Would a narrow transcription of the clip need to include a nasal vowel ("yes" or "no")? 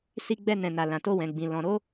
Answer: yes